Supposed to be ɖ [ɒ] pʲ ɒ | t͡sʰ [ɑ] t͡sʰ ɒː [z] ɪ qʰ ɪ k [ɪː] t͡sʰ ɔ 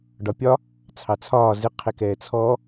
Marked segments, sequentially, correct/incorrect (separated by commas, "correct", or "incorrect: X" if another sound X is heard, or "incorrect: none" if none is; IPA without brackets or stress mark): correct, correct, correct, incorrect: ɛː